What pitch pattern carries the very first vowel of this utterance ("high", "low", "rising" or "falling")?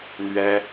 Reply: high